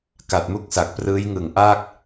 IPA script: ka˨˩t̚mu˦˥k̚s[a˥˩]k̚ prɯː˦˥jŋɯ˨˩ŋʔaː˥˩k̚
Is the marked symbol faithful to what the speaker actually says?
no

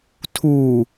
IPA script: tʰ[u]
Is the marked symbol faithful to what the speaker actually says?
yes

